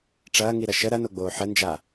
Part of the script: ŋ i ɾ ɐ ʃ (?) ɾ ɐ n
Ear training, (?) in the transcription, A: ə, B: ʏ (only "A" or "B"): A